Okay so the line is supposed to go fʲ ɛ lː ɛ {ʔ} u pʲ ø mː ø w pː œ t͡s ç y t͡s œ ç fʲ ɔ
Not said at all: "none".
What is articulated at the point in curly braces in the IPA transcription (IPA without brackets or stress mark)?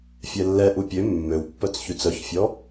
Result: ʔ